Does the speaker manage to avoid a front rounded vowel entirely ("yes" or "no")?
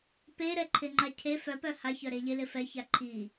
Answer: no